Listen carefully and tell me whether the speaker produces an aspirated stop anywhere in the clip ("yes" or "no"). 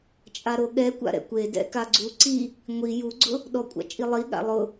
no